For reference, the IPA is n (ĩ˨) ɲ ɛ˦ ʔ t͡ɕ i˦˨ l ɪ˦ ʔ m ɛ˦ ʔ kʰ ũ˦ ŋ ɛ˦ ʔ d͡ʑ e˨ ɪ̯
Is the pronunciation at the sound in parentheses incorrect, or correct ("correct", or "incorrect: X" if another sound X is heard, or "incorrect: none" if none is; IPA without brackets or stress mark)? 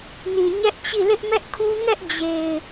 correct